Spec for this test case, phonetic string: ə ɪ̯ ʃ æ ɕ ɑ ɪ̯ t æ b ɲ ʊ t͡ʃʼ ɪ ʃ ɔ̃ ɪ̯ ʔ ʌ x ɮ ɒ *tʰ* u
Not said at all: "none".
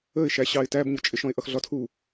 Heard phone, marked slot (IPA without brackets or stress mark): tʰ